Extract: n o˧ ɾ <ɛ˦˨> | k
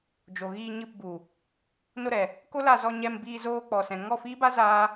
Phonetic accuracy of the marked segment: incorrect: ɛ˨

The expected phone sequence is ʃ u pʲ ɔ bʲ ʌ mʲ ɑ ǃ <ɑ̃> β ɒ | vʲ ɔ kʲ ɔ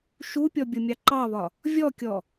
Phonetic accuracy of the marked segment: incorrect: ɑ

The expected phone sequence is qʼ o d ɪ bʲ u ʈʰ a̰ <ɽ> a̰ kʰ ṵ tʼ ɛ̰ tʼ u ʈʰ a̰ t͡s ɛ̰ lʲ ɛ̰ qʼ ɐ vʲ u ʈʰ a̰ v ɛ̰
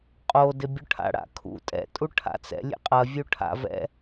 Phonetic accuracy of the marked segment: correct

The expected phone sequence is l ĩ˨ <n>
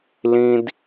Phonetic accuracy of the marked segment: incorrect: d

